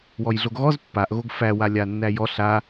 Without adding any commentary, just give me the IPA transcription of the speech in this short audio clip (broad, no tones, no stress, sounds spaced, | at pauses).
w ɔ j ɮ o ɡ ɣ ɔ z pː a ʔ ɣ o ɡ f æ w a lʲ a nː æ j ɔ ɬ a